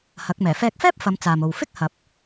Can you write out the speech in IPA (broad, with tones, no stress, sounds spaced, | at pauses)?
h ɐ˨˥ k̚ m ɛː˨˩ f ɛː˧ k̚ f ɛː˥ p̚ f ɐ˨˧ m t͡s aː˨ m o˨ w f ɪ˥ k̚ h ɐ˨ p̚